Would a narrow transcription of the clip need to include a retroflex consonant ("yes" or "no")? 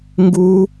no